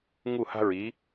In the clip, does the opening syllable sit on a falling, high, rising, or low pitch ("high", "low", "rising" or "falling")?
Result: falling